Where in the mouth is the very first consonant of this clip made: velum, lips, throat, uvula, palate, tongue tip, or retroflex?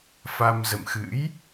lips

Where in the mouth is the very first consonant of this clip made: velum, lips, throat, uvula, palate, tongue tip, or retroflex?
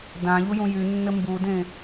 tongue tip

